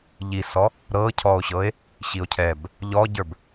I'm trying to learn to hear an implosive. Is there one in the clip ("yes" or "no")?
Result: no